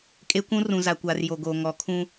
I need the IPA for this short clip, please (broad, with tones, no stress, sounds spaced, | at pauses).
kʼ e˦ kʷ ũ˦ r ũ˨ z a˨ kʷ aː˨ r j o˨ ɡ oː˨ ŋ ɔ˨˦ kʰ ũ˦